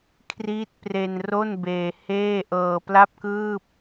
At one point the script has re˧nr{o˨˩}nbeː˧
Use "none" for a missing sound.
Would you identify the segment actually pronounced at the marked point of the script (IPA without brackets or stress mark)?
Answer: o˥˩